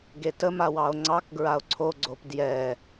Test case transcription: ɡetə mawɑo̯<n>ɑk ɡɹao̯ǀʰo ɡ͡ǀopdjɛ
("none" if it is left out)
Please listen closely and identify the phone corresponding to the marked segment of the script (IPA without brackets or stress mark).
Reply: ŋ͡ǀ